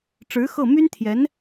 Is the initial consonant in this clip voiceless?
yes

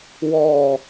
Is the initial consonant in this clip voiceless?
no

